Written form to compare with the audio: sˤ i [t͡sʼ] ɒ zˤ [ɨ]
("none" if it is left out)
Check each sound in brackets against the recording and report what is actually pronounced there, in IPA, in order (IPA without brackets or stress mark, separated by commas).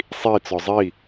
t͡s, i